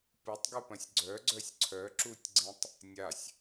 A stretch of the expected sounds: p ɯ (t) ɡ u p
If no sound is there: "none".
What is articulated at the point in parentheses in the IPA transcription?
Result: tˤ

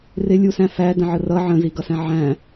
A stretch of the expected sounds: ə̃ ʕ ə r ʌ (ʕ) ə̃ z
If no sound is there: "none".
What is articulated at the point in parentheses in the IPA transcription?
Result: ʕ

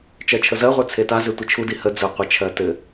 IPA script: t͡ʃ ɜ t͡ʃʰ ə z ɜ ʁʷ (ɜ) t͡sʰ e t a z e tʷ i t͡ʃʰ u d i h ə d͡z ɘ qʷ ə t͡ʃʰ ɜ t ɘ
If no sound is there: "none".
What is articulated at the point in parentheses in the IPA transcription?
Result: ə˞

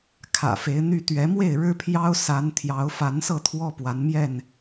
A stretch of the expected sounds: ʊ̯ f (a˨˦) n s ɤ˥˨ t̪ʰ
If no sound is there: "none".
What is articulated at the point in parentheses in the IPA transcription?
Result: a˨˦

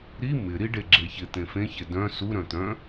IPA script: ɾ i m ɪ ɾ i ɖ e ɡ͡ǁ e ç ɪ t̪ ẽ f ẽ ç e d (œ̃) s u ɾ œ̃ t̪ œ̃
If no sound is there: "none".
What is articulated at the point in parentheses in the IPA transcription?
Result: œ̃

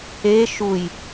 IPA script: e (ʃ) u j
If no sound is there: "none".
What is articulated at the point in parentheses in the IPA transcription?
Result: ʃ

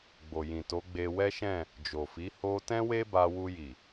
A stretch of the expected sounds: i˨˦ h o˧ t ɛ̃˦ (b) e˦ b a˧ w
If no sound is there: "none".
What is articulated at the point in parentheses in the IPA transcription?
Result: w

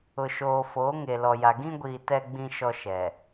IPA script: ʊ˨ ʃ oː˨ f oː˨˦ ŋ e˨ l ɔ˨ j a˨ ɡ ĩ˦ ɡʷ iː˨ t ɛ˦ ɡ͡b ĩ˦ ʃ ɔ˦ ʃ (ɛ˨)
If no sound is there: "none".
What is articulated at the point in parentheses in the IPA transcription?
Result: ɛ˨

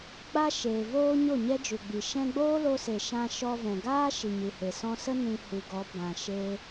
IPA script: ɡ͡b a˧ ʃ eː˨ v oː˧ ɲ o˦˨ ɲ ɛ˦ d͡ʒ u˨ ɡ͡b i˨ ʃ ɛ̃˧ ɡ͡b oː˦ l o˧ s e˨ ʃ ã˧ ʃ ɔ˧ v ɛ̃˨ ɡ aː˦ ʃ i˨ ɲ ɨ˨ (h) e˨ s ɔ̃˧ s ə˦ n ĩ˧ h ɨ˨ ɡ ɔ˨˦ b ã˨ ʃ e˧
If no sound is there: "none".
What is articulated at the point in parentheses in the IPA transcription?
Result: h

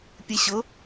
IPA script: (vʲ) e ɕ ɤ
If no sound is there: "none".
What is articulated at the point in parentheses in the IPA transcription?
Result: pʲ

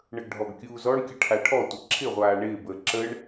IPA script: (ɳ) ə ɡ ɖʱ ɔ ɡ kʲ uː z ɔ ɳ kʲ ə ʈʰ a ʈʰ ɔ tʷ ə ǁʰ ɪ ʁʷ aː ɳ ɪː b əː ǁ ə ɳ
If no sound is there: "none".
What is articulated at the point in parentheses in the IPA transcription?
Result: ɳ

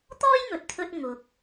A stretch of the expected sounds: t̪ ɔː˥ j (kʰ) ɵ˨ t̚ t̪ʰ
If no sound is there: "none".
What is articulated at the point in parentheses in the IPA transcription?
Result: ŋ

